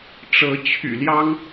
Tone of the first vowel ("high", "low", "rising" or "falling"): rising